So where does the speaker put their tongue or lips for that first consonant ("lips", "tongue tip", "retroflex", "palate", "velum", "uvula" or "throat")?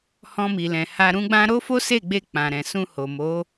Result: throat